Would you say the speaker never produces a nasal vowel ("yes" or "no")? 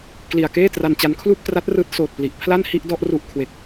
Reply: yes